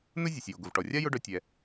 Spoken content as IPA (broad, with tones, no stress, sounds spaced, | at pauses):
n ʊ˥ zʲ ə˩ sʲ j o˩ ɡ ʊ˩ v ʈ ɔ˩ rʲ a˥ j ʊ˥ ɖ œ˧ tʲ ɛ˩